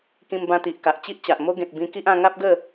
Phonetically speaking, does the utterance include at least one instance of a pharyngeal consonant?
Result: no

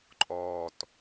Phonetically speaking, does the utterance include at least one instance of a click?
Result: yes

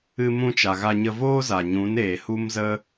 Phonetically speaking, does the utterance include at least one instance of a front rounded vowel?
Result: no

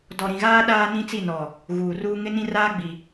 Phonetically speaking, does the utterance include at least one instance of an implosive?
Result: yes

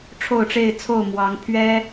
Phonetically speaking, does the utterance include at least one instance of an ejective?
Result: no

